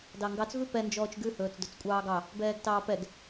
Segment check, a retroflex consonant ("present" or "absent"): absent